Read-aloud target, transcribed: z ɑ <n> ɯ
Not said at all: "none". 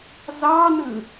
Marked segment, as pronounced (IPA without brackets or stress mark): n